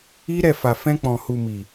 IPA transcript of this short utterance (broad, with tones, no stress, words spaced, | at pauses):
i˦ɾɛ˦˨fa˨ fɛ̃˧k͡pɔ̃˨ hu˨mi˨